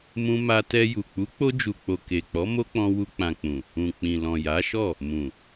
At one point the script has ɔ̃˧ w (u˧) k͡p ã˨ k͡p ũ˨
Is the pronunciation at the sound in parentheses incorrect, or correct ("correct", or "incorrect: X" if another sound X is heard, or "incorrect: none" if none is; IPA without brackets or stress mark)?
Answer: correct